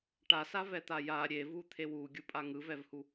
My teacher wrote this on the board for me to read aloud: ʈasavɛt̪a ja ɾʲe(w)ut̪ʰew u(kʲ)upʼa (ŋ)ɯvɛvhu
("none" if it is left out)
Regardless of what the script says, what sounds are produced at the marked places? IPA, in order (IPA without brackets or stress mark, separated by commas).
v, ɡʲ, ŋ